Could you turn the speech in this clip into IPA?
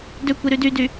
døkʷiɾy dydy

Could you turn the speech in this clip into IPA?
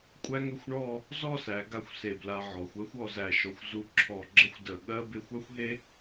kʷʼæ˥ŋʏ˥˧xʷɳɔ˥˧ | zɔ˥˧sæ˩˧ɡa˧xʷ se˧˩bla˧ ʕɔ˩˧xʷɜ˥xʷ ɔ˧zæ˧˩ʃɔ˧xʷ zu˧ǁʰɔ˧˩ ɡ͡ǁə˥˧xʷdə˧˩ɠɜ˥ be˥xʷ a˥xʷɦe˥

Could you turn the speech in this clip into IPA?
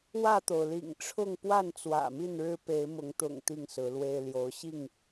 wä˥˨t̪o˩ʊ̯lḭ˨˩ŋ ʈ͡ʂʰʊ˥˨ŋ pwa˥˨nt͡swä̰˨˩mi˥˨nɻɻ̩˦ pe˨˦ɪ̯mʊ˨˦ŋt̪ʊ̰˨˩ŋ t̪i˥˨ŋsɹ̩˨˦lwe˦ɪ̯ ljo˨˦ʊ̯ɕi˥˨ŋ

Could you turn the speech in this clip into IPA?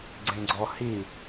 ɡ͡ǀẽɡ͡ǀɔhi

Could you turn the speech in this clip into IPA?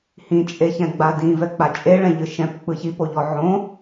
hĩt͡ʃʼeçɛ̃ ɡ͡badĩ vɛk͡pat͡ʃʼe ɭɛ̃ʎɯʃɛ̃p k͡pɯçipoʎɔ ʕõ

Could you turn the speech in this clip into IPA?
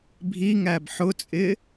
bʱiŋæb ħʊt͡sʼɪ

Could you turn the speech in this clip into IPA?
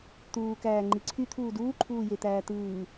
t̪uːkæː ŋ͡ǃiǀʰyt̪ʰuː duːǃʰuːjet̪æː t̪ɯː

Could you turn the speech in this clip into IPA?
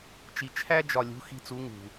t͡ʃi˨t͡ʃʰæ˦ d͡ʒɒ˨lʲṳ˨˦ xi̤˧t͡su˨˦ ŋṳ˨

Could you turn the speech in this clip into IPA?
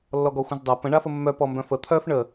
lːɔɡɔxʷə̃zdˤa pə̃ ɳafəmːœ pɔmbœ̃fə t̪ʰœf ɳə

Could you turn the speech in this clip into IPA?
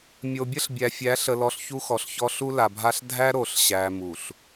mʲo˨bʲə˦ɬbʲæ˨ fʲæ˨˦ɬə˨lɔ˨ɬ çu˦xɔ˨ɬçɔ˦ ɬu˦la˨bʱa˦ɬ dʱæ˦ ɾo˨ɬɕæ˨ mu˨ɬ

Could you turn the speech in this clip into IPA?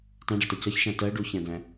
tãɖʌtʌ cʌçʃã tɜ ɖuçæ̃dæ̃

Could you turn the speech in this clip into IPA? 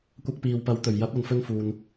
kʷɐ˧k̚piː˨wpɐ˨˥wt̪ɵ˨˩ɥ jɐ˨˥p̚ɐ˨nfɵ˧nfuː˨n

